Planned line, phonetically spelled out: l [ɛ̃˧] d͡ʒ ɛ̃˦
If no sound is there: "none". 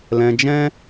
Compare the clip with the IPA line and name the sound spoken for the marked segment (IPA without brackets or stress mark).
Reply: ɛ̃˧